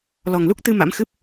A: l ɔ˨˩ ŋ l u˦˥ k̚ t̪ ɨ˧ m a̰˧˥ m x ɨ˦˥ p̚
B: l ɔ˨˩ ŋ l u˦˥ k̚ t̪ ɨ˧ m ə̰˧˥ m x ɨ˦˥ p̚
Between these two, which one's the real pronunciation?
A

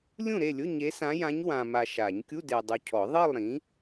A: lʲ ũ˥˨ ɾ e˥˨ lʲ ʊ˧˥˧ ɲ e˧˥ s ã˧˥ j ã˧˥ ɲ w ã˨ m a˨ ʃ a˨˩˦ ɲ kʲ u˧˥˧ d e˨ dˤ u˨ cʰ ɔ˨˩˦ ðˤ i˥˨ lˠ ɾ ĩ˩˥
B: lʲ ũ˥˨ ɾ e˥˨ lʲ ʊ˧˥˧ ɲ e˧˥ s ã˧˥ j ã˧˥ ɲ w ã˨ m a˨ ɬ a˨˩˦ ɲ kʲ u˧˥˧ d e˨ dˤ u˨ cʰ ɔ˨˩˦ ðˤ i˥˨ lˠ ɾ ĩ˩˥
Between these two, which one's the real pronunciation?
A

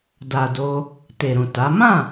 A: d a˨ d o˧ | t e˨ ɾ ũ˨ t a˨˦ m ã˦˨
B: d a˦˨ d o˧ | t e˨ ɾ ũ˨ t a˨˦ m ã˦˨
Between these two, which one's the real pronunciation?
A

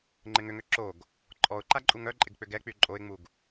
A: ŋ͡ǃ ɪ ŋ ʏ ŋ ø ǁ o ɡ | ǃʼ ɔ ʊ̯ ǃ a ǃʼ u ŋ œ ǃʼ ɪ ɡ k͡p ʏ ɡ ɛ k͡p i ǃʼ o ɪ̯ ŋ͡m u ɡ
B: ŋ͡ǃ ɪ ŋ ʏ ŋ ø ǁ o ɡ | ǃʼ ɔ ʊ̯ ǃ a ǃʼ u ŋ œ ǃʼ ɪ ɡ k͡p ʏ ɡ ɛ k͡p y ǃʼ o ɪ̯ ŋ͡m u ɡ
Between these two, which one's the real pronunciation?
B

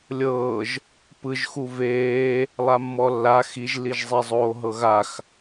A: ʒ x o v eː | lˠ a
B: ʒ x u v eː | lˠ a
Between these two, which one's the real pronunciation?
B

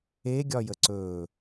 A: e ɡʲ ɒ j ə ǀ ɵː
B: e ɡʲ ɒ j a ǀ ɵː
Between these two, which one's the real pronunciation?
A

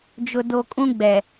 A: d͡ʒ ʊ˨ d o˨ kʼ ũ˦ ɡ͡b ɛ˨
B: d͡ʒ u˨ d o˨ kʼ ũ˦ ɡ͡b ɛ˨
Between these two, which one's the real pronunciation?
A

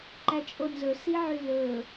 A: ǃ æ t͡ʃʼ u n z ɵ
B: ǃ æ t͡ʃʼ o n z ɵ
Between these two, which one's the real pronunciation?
B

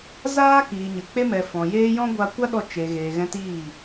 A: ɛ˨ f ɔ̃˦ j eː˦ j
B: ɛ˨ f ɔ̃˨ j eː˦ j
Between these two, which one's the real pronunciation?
B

